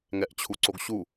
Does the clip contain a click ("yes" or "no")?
yes